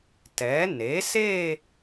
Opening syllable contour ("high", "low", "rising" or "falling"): rising